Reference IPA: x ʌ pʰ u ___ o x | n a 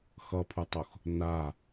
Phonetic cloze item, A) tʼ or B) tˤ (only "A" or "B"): B